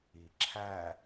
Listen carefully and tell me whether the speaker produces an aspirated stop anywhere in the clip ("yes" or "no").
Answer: yes